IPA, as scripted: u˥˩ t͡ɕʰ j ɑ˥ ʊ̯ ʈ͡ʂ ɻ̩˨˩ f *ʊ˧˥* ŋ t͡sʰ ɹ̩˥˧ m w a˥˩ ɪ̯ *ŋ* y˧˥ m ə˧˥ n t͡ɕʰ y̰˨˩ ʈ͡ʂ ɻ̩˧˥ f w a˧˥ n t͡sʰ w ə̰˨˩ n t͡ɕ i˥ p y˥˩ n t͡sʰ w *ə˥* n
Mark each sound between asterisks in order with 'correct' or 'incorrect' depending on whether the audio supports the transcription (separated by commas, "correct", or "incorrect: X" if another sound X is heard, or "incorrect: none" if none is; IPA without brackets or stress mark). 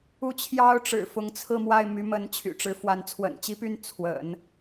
correct, incorrect: m, incorrect: ə̰˨˩˦